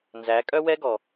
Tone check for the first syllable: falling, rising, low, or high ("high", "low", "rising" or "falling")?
rising